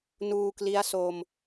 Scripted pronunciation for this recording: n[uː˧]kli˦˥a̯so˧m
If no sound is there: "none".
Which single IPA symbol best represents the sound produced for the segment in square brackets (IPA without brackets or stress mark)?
uː˧